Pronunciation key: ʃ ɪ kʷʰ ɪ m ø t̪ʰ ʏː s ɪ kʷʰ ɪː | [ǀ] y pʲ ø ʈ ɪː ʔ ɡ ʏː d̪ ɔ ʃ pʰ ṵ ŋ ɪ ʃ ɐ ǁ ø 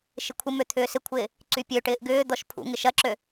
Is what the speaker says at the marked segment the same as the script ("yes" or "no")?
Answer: yes